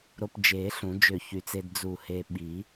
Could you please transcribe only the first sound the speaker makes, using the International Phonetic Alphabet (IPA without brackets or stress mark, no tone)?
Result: ɾ